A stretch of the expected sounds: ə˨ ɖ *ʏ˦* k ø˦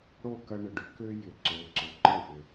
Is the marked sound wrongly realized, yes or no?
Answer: no